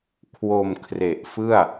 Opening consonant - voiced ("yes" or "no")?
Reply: no